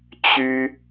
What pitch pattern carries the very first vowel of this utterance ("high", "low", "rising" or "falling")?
high